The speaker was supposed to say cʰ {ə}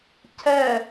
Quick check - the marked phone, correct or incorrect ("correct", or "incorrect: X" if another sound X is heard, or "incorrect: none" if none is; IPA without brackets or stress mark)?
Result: incorrect: ɛ